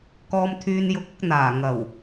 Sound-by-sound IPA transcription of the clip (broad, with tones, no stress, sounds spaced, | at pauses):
k ɔː˧ m t̪ʰ yː˧ n j ʊ˧ k̚ ʊ˨˥ k̚ n̪ aː˨˩ ŋ ɐ˨˩ w